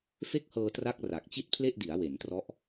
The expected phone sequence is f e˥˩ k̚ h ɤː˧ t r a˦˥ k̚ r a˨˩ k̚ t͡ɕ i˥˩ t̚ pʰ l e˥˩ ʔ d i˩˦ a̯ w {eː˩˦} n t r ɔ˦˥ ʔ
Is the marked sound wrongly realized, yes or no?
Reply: yes